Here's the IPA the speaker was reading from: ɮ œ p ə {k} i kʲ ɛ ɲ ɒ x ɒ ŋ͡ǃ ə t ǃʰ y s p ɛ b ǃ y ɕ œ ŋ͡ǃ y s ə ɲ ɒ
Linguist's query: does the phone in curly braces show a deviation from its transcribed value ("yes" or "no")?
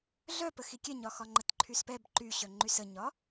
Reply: yes